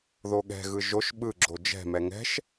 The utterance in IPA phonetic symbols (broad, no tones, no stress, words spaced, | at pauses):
ðoɠɛ̤ɣɯ ʒoʃ ɓɯɡ͡ǁo d͡ʒɛ̤mɛ ŋɛ̤ʃ